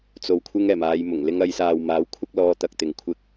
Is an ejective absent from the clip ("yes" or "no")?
yes